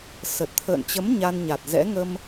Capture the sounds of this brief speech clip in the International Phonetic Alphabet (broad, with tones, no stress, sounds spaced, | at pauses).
s ə˨˩ t̚ t̪ʰ ə̰ː˧˨ n t͡ɕ ə˨˦ m ɲ a˧ n ɲ a˨˩ t̚ z ɛ̰˧˥ ŋ ə˧ m